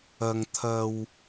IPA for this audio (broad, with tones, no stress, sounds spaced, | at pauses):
ɐ˨ ŋ t̪ʰ ɐ˨ w